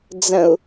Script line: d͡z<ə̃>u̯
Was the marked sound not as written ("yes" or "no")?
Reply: no